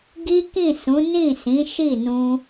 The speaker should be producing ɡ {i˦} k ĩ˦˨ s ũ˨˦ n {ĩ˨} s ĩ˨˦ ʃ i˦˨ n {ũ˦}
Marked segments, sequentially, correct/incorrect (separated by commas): correct, incorrect, incorrect